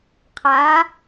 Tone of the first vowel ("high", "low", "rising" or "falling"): rising